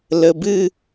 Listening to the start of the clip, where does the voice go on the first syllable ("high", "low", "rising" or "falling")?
low